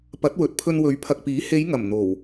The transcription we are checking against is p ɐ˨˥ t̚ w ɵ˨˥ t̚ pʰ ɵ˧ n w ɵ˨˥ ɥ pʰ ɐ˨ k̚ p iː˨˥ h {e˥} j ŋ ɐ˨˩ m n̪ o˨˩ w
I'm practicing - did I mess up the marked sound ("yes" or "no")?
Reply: yes